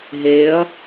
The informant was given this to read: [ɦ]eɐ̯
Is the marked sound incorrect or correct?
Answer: correct